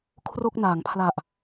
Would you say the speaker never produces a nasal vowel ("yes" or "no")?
yes